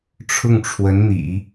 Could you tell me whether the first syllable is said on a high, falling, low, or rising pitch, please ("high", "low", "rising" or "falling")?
falling